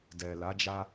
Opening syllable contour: low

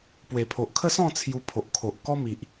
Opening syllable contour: low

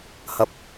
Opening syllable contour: low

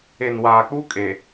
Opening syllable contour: low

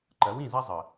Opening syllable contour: rising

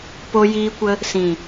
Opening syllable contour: high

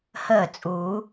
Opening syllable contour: falling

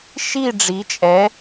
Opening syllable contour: falling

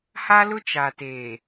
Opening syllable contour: high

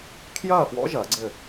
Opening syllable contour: falling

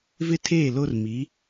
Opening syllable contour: high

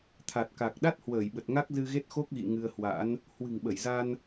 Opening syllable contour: low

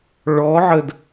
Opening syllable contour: rising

